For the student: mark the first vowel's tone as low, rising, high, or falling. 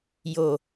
low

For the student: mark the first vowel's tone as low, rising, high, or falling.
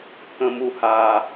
low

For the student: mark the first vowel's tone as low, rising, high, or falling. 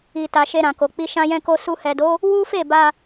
low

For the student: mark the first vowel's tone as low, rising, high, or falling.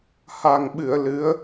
low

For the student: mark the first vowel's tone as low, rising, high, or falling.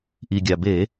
low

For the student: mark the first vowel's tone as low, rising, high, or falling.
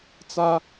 high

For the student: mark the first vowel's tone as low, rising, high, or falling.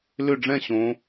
falling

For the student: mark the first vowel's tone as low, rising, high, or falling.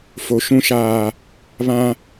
low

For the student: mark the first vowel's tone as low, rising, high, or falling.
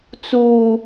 high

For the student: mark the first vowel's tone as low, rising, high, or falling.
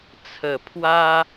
low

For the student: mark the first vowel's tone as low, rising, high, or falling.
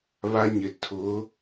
high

